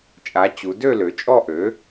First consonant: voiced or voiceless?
voiceless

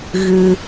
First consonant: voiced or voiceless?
voiced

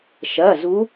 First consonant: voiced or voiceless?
voiceless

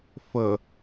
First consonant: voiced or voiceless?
voiceless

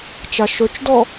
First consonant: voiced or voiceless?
voiceless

